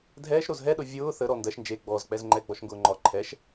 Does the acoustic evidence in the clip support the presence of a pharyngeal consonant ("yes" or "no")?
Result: no